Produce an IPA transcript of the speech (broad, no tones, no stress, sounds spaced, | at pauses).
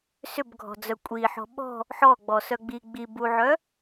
s ʏ b ɡʱ ɔ̤ d͡z œ kʷʼ i ħ ɔ̤ ɓ ɔ̤ | ħ ɔ ɡ͡b ɔ s œ ɡ͡b i ɡ͡b i b u ʕ œ